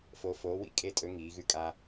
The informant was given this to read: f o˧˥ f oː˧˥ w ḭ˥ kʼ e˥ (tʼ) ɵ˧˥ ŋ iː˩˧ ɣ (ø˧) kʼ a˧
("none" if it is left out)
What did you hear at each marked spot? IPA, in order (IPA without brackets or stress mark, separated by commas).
tʼ, ʉ˧